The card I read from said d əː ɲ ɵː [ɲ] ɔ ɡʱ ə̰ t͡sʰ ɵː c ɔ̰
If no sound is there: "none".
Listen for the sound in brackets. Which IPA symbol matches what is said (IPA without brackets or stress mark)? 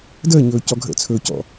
c